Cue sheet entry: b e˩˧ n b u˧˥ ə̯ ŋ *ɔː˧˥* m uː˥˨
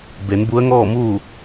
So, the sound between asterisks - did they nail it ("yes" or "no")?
no